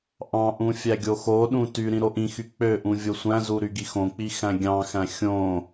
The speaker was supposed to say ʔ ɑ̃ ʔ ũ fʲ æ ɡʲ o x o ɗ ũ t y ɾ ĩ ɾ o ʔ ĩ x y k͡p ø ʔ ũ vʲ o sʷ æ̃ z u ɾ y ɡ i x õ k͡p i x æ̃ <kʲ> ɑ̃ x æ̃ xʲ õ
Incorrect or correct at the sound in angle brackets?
incorrect: ɡʲ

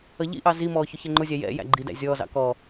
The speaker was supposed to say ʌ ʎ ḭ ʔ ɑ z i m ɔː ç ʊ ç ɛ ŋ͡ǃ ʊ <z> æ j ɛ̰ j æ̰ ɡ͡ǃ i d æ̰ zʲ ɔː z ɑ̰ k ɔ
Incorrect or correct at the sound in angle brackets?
incorrect: zʲ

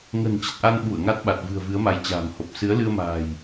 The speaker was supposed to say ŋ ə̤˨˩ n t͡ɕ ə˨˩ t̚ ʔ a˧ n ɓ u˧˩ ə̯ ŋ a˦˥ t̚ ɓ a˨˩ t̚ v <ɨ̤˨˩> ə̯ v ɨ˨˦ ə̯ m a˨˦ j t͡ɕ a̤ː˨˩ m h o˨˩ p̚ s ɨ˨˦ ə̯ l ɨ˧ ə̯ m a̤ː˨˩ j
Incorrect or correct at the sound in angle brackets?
correct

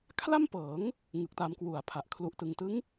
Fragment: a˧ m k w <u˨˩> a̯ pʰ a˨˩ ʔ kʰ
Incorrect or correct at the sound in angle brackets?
correct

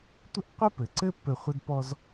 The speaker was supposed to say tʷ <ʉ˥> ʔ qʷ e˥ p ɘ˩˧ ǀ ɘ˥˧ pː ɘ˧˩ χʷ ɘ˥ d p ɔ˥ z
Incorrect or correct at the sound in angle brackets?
incorrect: ɘ˥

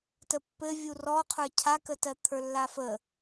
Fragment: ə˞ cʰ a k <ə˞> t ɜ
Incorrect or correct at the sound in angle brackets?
incorrect: ə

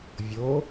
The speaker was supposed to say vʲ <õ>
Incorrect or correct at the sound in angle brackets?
incorrect: o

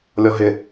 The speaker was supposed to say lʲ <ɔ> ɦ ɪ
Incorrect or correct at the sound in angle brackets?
correct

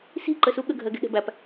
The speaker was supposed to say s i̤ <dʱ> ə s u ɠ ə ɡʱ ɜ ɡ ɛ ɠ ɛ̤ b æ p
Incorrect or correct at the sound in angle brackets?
incorrect: ǃ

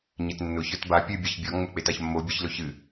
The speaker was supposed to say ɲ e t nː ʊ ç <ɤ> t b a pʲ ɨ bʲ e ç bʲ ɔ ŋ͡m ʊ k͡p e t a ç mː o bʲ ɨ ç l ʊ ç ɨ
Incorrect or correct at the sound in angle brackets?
incorrect: ə˞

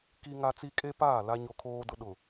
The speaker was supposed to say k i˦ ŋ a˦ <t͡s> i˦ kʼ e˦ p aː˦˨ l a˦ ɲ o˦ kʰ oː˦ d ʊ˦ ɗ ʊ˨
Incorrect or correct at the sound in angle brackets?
correct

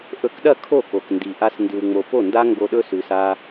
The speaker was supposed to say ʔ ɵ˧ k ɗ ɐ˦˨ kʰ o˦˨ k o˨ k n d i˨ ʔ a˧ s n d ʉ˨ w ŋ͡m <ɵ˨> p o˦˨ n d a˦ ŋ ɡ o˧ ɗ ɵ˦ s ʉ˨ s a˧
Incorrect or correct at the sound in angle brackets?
incorrect: o˨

